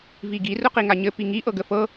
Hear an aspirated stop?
no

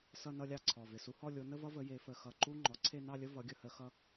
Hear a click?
yes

